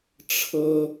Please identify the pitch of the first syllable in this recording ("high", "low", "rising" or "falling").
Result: high